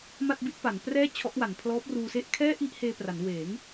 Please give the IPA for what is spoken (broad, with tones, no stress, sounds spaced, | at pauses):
m a˥˩ t̚ b i˥˩ t̚ p a˩˦ n p r ɛː˥˩ t͡ɕʰ ɔ˦˥ ʔ w a˩˦ n pʰ l ɔː˦˥ p̚ r uː˧ s e˥˩ ʔ kʰ ɛː˥˩ ʔ i˥˩ ʔ h eː˧ p r a˩˦ n w eː˩˦ ŋ